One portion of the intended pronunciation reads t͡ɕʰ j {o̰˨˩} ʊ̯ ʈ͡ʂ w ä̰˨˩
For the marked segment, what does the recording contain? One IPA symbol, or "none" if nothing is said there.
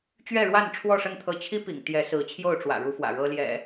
o˥˨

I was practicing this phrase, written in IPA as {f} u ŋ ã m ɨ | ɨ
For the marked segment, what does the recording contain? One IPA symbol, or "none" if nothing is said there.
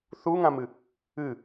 θ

